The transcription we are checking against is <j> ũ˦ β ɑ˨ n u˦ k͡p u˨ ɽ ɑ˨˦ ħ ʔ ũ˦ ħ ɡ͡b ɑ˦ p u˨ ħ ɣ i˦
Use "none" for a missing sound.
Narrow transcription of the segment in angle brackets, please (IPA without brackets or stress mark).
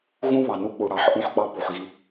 ɣ